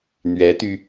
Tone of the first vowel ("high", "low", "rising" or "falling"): rising